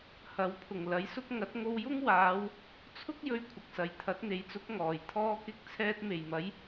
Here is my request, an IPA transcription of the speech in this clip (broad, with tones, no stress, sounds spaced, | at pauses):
h ɐ˨˥ w pʰ ʊ˨˩ ŋ l ɐ˨˥ j s ʊ˥ k̚ ŋ ɐ˨˥ t̚ ŋ o˧ w j ʊ˥ ŋ w aː˨˧ w | t͡sʰ ʊ˥ k̚ j ɵ˧ ɥ kʷʰ ɐ˨ k̚ s ɐ˨ j t̪ʰ ɐ˨˥ t̚ n̪ e˨˧ j t͡s ʊ˨˥ k̚ ŋ ɔː˨˩ j t̪ʰ ɔː˧ k ɪ˧ k̚ t͡sʰ ɛː˧ t̚ m e˨˩ j m ɐ˨˥ j